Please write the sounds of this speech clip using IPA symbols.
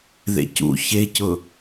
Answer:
ð ḛ c ṵ ç e c ʊ

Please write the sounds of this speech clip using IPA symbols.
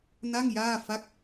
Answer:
n a˥˩ ŋ j aː˥˩ f a˥˩ k̚

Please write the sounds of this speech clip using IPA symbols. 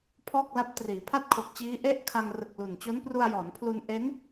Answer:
pʰ ɔː˥˩ k̚ l a˦˥ p̚ t r iː˩˦ pʰ a˥˩ t̚ kʰ o˨˩ k̚ t͡ɕ iː˦˥ ʔ e˥˩ ʔ kʰ a˧ ŋ r ɯ˨˩ k̚ l u˨˩ n t͡ɕ o˦˥ n p r u˧ a̯ j ɔː˩˦ n pʰ l u˧ n ʔ e˦˥ n

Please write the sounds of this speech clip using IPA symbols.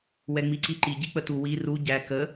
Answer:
w ɛ ŋ͡m i ǀ i ǃ i ɟ i k͡p ə t u w i r u ɟ æ k ə

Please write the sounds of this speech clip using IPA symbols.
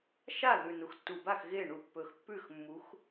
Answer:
ʃ a˥˩ ð ʉ˨˩ n u˩˧ x tː u˨˩ b a˥˩ x ɣ e˥˩ ɳ u˧˩˧ pː ɵ˨˩ x pː ʉ˥˩ x mː u˨˥ x

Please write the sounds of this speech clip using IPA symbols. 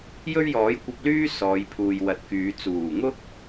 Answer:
j ɵ˥ ɥ j ɔː˨˥ j kʷ ɐ˧ p̚ l yː˥ s ɔː˨˧ j pʰ uː˨ j w ɐ˨˥ t̚ k yː˨˧ t͡s uː˨˩ ŋ ʊ˥ k̚

